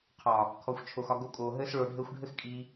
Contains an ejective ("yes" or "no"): yes